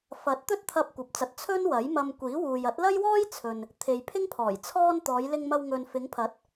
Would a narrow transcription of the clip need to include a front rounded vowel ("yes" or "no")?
no